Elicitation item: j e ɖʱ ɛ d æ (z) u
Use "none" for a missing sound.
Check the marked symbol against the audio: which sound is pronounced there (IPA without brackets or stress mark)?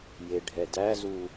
z